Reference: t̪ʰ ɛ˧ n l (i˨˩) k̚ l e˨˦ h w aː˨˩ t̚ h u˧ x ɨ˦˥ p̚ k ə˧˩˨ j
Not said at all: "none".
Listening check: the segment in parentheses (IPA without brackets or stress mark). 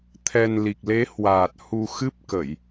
i˨˩